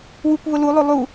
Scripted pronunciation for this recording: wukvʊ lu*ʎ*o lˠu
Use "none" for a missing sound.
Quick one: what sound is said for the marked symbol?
lˠ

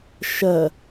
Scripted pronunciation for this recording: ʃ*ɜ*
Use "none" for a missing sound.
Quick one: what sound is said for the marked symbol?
ɜ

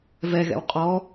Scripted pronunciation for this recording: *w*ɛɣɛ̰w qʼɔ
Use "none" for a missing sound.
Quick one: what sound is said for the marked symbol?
v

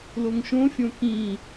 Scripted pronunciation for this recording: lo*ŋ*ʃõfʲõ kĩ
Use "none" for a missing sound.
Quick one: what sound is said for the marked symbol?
ŋ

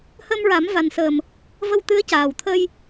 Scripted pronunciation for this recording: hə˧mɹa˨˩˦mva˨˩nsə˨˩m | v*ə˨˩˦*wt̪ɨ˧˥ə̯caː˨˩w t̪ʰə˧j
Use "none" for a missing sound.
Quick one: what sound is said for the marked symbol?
ə˧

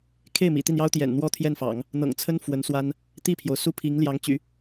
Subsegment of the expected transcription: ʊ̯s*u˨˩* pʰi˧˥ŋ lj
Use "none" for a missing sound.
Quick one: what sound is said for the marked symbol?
u˥˩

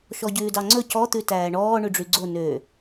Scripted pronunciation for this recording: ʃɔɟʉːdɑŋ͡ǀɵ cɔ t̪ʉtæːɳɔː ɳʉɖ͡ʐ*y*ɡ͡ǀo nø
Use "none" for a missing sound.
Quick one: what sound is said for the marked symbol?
y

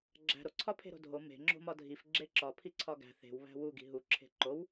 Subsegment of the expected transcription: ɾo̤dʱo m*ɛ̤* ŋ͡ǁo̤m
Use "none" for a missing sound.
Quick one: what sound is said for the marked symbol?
e̤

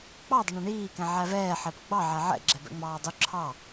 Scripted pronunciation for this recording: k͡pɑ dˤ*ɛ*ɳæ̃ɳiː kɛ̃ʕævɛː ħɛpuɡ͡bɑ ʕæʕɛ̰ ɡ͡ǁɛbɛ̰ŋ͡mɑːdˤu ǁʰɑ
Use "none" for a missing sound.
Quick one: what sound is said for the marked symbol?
ɪ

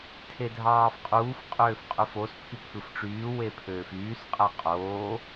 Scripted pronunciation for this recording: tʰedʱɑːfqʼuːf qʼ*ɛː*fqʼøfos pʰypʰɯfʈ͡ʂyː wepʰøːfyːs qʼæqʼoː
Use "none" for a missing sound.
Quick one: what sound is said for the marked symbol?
øː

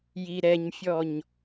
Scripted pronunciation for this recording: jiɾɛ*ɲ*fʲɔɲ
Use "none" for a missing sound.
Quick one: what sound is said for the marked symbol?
ɲ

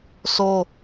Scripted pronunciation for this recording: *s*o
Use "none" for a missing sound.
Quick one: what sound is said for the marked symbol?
s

